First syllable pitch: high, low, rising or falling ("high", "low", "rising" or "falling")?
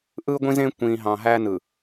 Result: high